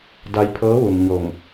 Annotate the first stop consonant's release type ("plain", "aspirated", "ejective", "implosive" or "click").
plain